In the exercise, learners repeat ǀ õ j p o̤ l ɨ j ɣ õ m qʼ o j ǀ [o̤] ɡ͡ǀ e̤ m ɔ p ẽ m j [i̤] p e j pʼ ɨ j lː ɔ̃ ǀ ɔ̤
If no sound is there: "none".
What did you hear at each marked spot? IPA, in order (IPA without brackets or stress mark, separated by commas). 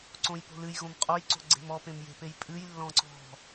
o̤, e̤